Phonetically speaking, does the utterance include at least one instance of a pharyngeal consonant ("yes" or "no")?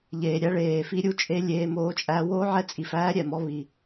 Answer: yes